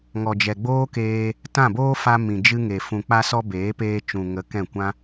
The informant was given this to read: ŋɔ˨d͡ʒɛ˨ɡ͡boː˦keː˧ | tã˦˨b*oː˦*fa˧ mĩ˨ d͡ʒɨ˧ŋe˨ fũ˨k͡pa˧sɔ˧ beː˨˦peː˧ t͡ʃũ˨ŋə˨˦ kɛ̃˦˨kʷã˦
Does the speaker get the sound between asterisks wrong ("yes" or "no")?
no